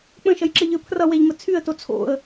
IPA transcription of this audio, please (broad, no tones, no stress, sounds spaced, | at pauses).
k͡p ə̃ ʃ ʌ j ǁ ɘ ʎ ə˞ pʰ r ʌ w ɛ ʎ m ə t͡sʰ y ə̯ t o t͡sʰ o̰ ə̯